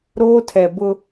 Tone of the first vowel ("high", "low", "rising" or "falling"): high